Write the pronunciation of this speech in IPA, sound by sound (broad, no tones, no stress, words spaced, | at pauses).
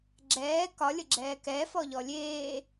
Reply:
ɡ͡ǁɛː kɒlʲəɡ͡ǁɛː kɛfɔʎɔ lʲeː